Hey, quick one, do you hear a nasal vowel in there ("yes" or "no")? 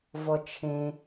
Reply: yes